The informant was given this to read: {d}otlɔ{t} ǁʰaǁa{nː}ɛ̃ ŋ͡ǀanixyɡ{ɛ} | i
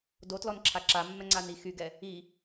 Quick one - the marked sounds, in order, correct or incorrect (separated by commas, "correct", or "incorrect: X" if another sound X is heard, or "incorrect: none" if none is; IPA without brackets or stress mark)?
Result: correct, incorrect: n, incorrect: mː, correct